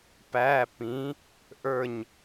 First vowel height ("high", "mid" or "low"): low